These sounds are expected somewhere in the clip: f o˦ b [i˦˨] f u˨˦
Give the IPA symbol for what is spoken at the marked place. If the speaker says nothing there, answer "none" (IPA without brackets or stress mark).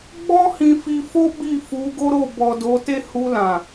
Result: i˦˨